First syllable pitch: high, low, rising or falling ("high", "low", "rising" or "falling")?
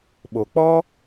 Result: low